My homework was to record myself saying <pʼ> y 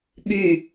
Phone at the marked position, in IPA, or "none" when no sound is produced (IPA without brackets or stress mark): ɓ